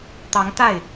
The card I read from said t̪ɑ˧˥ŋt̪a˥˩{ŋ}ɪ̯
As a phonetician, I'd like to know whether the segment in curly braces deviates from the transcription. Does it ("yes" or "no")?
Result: yes